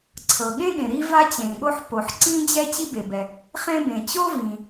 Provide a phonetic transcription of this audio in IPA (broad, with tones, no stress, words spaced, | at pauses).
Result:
ǀʰɤ˩ɠẽ˥ɠẽ˩ ɾi˥va˥t͡ɕẽ˩ɠo˥ħ po˩ħ ǀĩ˥d͡ʑɛ˥ t͡ɕi˥be˩bɛ˩ | χẽ˥bẽ˩ t͡ɕo˥vĩ˩